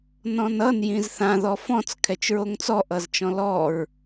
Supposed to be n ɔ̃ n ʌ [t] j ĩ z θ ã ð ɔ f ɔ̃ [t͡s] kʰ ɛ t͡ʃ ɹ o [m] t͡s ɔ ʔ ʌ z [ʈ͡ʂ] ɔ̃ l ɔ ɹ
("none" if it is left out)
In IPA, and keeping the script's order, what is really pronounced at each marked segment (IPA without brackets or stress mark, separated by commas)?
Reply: n, t͡s, ŋ, t͡ʃ